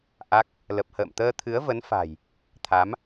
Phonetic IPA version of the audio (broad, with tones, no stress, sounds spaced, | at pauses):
ʔ a˦˥ k̚ | l ə˨˩ p̚ h ə̰ː˧˨ m t̪ əː˧ t̪ʰ ɨ˨˦ ə̯ v ə˨˦ n f a̤˨˩ j | t̪ʰ a˨˦ m